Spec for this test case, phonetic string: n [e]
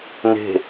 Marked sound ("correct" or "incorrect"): incorrect